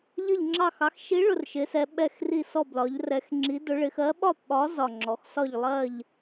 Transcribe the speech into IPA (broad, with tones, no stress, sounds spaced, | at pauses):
ʎ ə˥˧ ʎ ŋ͡ǁ ɑ˥˧ x ɑ˧˥ x ʃ i˧˥ ɭ ʊ˥˧ r ʃ ɪ˧˥ s ɛ˧˥ ɓ ɛ˥˧ x r i˥˧ s ɔ˥˧ b l ɒ˧˥ ʎ r ɛ˧˥ x ŋ͡ǁ i˧˥ d ʊ˧˥ ɭ ɪ˧˥ x ɜ˧˥ ɓ ɒ˥˧ p ɓ ɒ˧˥ z ɒ˥˧ ŋ͡ǁ ɔ˧˥ x s ɒ˥˧ ʎ lˠ ɜ˥˧ ʎ